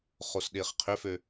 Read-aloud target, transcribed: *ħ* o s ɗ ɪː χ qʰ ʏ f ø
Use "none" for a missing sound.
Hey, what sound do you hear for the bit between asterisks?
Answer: χ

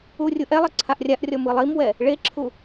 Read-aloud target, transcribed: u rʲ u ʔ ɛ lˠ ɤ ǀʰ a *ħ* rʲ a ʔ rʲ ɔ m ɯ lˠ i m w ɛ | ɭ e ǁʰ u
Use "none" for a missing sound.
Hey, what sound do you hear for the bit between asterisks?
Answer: ʔ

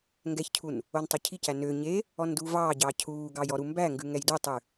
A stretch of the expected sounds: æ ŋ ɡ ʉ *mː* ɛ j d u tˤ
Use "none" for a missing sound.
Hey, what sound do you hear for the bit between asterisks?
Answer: ŋ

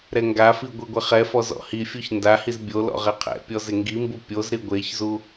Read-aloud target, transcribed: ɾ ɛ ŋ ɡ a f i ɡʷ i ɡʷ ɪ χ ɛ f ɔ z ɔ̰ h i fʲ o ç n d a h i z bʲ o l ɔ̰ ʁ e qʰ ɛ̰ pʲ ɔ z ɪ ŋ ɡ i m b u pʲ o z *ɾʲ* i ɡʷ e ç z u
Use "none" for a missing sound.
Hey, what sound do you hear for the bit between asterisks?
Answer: ɾ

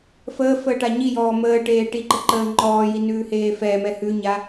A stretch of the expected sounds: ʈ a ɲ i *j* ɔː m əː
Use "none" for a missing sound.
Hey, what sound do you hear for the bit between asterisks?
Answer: j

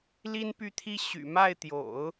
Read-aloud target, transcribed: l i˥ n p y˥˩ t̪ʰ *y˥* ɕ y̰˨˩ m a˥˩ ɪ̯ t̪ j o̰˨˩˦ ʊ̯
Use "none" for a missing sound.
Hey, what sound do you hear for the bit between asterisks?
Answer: i˥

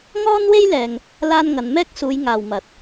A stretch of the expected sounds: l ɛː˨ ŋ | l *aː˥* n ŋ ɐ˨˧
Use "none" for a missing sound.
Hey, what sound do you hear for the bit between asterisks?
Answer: aː˥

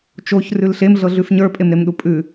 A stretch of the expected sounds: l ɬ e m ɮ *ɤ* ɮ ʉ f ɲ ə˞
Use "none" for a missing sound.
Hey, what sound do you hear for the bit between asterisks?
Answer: ɤ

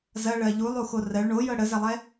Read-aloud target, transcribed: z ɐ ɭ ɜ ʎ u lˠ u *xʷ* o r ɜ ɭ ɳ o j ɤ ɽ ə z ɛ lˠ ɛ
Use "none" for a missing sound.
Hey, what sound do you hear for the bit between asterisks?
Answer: x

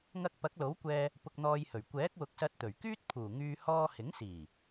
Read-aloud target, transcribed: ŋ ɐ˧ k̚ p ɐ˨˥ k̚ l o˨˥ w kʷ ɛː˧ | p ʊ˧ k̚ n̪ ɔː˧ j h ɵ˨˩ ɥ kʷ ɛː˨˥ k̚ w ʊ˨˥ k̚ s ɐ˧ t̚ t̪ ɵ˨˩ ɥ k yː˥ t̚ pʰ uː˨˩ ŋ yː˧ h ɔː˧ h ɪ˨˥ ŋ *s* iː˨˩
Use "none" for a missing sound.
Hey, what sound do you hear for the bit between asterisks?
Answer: s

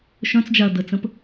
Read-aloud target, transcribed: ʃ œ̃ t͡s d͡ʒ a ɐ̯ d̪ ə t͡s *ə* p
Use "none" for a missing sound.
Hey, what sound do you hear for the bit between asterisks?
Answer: ə̃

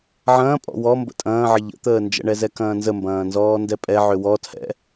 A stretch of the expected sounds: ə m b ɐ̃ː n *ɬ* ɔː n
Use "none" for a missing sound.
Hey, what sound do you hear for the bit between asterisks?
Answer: z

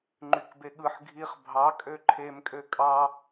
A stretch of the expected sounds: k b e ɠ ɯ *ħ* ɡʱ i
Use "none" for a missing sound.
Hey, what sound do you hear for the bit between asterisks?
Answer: ħ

